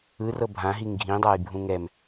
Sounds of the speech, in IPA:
ɯ r ɤ bʱ ã ɦ i ŋ ɡʱ ĩ dˤ a j bʱ ũ ŋ ɛ m

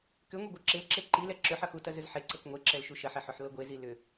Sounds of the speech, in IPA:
k ʏ ŋʷ e ɡʷ ɤ ǁ e l ǁ e ǃ i l ɛ ǁ ʏ ħ ʌ x u t ɐ z ʏ z ħ e ǀ ɤ k ŋʷ e ǁ ɛ l ʃ u ʃ ɐ ħ ɛ ħ ʏ ħ l ɤ ɡʷ e z i l ʏ

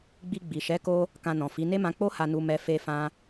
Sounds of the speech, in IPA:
ɡ͡b i˧ ɡ͡b i˨ ʃ ɛ˨˦ k o˧ | k ã˧ n ɔ̃˨ f i˨˦ n e˦ m ã˧ k͡p o˦ h a˧ n u˧ m ɛ˧ f e˧ f ã˧

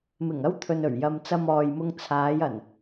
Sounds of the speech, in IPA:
m ɪ˨˩ ŋ ɐ˥ w t̪ʰ ɵ˨ n ɵ˨˩ ɥ j ɐ˨ m t͡s ɐ˧ m ɔː˨ j m ʊ˧ ŋ t͡sʰ aː˨˧ j ɐ˨˩ n

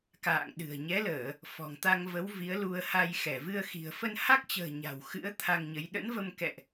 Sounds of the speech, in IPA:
k a̰ː˧˨ ŋ ɗ ɨ̤˨˩ ə̯ ɲ ɛ˨˦ l əː˧˩˨ | f ɔ̤˨˩ ŋ t̪ a˧ ŋ v ə˨˦ w v i˨˦ ə̯ l u˧ ə̯ h a˧ j x ɛ˧˩ v ɨ˧ ə̯ x i̤˨˩ ə̯ f ə˧ n h a˦˥ k̚ t͡ɕ ə̤ː˨˩ ɲ a̤˨˩ w x ɨ̰˧˥ ə̯ t̪ʰ a˧ ŋ ɲ ə˨˦ j ɗ ə̰˧˥ n v ə˧ m k ɛ̰˧˨ ʔ

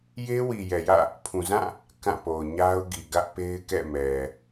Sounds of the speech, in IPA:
j e˦ w i˨ j ɛ˨ j ä̰˦˨ | pʰ ũ˨ z ã˦˨ | k ã˦˨ p o˨ ʊ̯ ɲ a˦ ʊ̯ ɡ i˨ ɡ ä˦ ʔ p e˦ ɪ̯ k ɛ̰˦˨ m ɛ˨

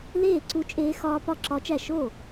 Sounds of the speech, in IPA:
l eː˥˩ ǀ u˦˥ t͡ʃʼ eː˦˥ x ɒː˦˥ p ɒ˥˩ ǁ ɒ˦˥ t͡ʃ æ˥˩ ʃ oː˥˩

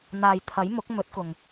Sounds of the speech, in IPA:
n̪ aː˨ j t̪ʰ ɐ˨˥ j m ʊ˨˥ k̚ m ɵ˨˥ t̚ k ʊ˨ ŋ

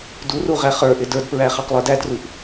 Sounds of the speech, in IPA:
d u r u ʁ æ χ ə˞ ʔ ɪ d ə˞ d p ɹ æ χ ɑ q lˠ ə˞ d æ d r u ʔ

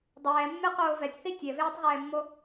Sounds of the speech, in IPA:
dˤ ɛː mː e q oː v ɛ tʲ θ i tʲ ɛ v eː tˤ ʁ ɛː mː o

